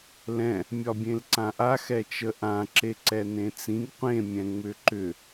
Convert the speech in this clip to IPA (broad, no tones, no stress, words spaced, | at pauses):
lɛ̃ | mʲɒbʲẽlǀãʔa xɛt͡ʃəʔã ǁeǀɛnẽt͡sĩɡ qʷẽ mʲɛ̃ŋ͡mʏǃʏ